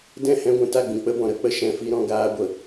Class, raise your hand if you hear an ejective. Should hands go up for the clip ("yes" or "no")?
no